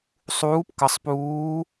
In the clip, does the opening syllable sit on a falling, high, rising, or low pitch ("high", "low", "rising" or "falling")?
rising